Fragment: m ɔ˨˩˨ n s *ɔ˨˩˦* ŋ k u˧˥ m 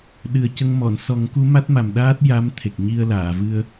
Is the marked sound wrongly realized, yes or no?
no